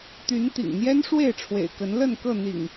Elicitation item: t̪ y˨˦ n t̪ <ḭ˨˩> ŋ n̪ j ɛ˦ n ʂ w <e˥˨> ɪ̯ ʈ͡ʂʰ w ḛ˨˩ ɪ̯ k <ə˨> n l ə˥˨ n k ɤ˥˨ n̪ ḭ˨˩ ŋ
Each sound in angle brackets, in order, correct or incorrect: correct, correct, incorrect: ə˨˦

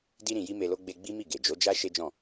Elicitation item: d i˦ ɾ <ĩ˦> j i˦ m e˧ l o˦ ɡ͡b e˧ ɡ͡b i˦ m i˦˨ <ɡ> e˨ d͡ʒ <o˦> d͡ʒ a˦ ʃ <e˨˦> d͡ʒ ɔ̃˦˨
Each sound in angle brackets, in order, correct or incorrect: incorrect: ĩ˧, correct, incorrect: o˨˦, incorrect: e˦

